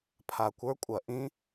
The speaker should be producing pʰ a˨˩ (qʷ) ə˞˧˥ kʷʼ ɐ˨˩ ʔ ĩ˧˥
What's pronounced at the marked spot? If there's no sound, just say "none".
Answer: kʷ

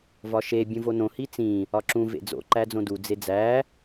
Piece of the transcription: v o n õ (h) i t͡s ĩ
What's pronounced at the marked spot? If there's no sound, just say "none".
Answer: h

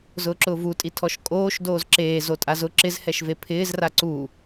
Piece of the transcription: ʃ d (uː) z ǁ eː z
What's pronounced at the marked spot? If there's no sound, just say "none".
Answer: oː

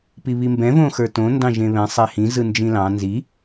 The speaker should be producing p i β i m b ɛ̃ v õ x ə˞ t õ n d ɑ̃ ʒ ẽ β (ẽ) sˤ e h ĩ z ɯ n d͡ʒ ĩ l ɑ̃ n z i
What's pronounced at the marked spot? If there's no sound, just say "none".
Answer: ɛ̃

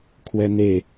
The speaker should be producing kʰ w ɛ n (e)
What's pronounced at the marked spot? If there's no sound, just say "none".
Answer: e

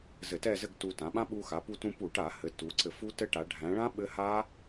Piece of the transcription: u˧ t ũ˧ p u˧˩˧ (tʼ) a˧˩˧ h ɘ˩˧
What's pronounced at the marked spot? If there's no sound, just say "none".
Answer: ʈ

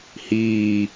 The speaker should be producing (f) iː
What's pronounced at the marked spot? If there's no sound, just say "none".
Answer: h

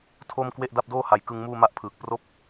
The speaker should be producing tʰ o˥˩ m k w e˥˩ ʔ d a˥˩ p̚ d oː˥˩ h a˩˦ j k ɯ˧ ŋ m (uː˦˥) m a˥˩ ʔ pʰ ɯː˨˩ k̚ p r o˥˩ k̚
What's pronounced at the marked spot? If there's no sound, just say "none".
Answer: uː˥˩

